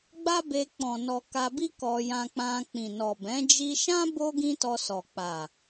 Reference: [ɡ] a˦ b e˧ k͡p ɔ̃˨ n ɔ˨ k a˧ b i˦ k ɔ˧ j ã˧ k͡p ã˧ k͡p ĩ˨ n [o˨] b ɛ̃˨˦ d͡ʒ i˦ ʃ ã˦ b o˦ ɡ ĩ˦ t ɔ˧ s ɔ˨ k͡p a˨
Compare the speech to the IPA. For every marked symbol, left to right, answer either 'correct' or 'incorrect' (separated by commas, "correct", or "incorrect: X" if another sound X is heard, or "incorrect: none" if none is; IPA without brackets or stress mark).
incorrect: ɡ͡b, incorrect: ɔ˨